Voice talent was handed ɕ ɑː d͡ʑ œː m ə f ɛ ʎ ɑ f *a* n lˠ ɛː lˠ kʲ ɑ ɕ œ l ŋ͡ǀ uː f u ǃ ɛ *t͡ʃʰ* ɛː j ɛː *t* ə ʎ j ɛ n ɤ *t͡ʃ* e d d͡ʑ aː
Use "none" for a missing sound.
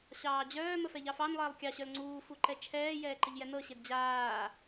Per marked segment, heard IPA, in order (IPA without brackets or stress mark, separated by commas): ɑ, t͡ʃʰ, ǃ, ɕ